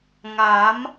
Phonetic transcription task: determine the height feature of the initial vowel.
low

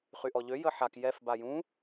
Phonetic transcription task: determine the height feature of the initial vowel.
high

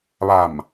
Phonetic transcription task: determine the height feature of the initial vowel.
low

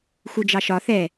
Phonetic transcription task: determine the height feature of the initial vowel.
high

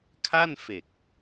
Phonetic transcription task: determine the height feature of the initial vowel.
low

